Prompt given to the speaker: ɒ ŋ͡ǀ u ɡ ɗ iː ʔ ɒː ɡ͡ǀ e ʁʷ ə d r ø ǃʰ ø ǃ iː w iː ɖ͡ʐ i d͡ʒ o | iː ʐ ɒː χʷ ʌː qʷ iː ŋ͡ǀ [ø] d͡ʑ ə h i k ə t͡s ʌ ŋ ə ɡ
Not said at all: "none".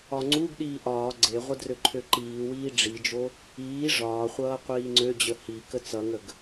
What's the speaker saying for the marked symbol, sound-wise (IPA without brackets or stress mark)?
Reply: ø